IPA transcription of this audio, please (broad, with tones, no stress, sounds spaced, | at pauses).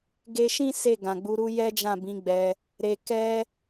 ɡ e˧ ʃ ĩ˦ s e˦˨ ɡ ã˨ ɡ͡b u˨˦ ɾ u˦ j ɛ˦ d͡ʒ ã˦˨ b ĩ˨˦ ɡ͡b ɛ˧ | ɾ e˨ k ɛ˧